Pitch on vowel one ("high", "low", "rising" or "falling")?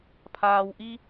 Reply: low